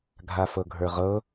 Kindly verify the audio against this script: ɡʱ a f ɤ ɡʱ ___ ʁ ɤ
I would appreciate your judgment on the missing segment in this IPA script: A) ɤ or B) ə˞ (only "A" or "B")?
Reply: B